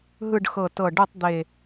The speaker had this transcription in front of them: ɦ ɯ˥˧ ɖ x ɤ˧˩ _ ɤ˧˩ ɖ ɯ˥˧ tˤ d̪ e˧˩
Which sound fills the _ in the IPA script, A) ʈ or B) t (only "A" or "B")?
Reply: B